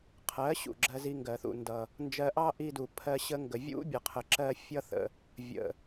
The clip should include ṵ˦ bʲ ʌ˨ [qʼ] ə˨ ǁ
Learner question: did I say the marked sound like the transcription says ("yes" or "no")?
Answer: no